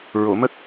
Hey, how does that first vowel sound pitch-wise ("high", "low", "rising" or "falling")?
low